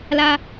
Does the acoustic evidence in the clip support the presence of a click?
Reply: no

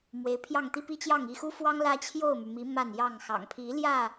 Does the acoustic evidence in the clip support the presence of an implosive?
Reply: no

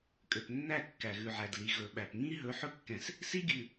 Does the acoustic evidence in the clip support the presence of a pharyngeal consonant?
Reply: yes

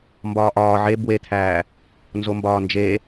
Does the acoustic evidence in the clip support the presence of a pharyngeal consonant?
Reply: yes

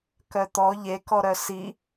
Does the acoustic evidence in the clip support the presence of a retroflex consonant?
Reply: no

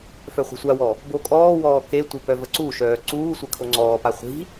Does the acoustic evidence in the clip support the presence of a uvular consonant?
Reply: yes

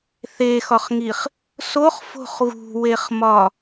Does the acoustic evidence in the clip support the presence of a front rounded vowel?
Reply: no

